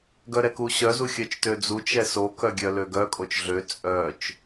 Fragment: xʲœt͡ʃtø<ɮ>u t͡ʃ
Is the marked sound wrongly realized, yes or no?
yes